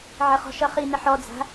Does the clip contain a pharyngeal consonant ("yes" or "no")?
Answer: yes